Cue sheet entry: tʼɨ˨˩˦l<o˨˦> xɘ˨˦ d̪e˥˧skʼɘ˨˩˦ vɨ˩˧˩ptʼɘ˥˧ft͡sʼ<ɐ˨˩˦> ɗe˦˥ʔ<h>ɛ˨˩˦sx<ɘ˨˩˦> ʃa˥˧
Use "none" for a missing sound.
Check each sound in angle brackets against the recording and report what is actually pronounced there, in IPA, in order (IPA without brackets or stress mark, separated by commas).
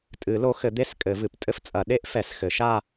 o˨˦, ɐ˨˩˦, f, ɘ˨˩˦